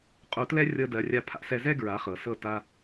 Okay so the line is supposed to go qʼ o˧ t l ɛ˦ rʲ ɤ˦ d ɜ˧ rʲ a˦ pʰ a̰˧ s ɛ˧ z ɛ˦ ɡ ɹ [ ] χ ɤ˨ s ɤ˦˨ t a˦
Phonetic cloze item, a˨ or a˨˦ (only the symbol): a˨˦